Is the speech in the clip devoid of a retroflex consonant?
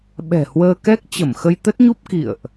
yes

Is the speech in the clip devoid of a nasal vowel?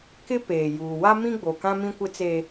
no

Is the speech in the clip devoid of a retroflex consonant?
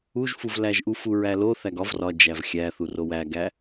yes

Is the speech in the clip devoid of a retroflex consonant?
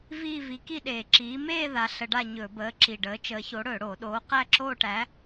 no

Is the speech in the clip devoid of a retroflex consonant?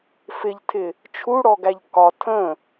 no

